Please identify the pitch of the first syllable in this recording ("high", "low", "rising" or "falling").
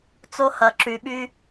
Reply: high